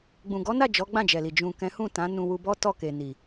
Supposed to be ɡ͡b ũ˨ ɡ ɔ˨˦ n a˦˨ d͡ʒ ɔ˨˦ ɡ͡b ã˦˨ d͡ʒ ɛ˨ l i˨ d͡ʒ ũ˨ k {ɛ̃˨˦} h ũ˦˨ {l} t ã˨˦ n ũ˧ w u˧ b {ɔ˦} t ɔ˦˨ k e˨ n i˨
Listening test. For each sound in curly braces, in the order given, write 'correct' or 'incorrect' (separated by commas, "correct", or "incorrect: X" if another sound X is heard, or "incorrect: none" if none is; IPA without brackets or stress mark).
correct, incorrect: none, correct